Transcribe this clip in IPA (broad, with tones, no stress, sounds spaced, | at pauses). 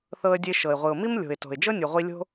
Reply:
θ ɤ˧ ə̯ dʲ e˧ ʃ ɤ˩ ɪ̯ ʁʷ ɯ˩ ʊ̯ m i˥ m lʲ o̤˩ ɪ̯ t o̤˩ ɪ̯ d͡ʒ ɤ˥ nʲ u˩ ʁʷ i˧ lʲ o̤˥